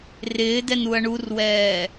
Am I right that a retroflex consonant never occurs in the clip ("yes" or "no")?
no